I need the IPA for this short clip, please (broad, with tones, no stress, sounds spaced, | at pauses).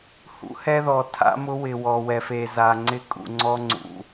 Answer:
h ṵ˦ h ɛ˦ ð ɔ˨ tʰ a̰˦ m ʊ˦ w ɪ˨ w ɔ˨ w ɛ˨ f e˨ z a˨ ŋ͡ǀ ɪ˦ kʼ ṵ˨ ŋ͡ǀ ɔ˦ ŋ͡ǀ ṵ˨